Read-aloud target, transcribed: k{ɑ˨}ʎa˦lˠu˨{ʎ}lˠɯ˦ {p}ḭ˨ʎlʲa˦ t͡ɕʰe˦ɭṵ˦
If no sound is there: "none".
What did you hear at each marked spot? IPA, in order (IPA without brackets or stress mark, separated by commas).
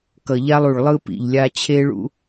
ʌ˨, ɭ, p